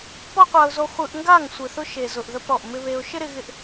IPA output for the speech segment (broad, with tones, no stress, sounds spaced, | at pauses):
p ɔ˦ qʷ a˧ ʊ̯ z o˧ χʷ ɯ˧ ʔ ŋ ɡ a˦˨ ŋ sʷ ɯ˨ θ ʊ˧ ʃ e˨ z ʊ˨ ʔ ð ə˧ p ɾ ɔ˨ ʔ m ɪ˧ β e˧ ʊ̯ ʃ ɪ˦ ɾ ɪ˧ ɣ ɪ˧ ʔ